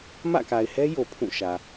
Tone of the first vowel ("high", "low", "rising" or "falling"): falling